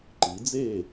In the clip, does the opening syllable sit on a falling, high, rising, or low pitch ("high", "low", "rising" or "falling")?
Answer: rising